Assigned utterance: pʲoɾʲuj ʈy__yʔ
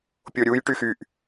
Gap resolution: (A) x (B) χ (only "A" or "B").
A